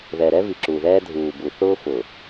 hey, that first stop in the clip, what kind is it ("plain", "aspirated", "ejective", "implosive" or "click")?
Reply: click